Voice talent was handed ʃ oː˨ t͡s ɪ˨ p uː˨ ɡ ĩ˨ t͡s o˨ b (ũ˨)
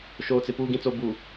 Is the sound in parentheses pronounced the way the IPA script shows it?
no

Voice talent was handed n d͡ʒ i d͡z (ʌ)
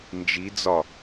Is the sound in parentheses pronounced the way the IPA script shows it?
no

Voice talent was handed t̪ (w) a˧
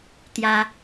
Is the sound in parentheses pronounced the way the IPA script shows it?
no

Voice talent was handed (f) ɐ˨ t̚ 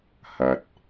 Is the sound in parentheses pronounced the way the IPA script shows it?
no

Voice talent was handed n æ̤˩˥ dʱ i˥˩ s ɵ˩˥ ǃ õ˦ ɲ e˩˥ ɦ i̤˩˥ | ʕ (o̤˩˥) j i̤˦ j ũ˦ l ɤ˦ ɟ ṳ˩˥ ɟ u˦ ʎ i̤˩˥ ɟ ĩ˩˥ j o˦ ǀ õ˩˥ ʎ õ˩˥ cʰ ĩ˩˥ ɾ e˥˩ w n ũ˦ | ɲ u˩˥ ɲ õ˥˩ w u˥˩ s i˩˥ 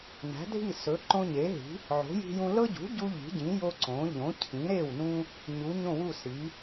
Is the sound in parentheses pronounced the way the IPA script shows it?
yes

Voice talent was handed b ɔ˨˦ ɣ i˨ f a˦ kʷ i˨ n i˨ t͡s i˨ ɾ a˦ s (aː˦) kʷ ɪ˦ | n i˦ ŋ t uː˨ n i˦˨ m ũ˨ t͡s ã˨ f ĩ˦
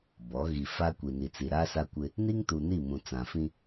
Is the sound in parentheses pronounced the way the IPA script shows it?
no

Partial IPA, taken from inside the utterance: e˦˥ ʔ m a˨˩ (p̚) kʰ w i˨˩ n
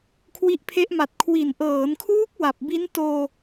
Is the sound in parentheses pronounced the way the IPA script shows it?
no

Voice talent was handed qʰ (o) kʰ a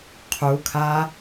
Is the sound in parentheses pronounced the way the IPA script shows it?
no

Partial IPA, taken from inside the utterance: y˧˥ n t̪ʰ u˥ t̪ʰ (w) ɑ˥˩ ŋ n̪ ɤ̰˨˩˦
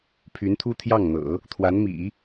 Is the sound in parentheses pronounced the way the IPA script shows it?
no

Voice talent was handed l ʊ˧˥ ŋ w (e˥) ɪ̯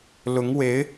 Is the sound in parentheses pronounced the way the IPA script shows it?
no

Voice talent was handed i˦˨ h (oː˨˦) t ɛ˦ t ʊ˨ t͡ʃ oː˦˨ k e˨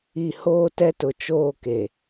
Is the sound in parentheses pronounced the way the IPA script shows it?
no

